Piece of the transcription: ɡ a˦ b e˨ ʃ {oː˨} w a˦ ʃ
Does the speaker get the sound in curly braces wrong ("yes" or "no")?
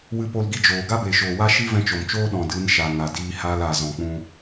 no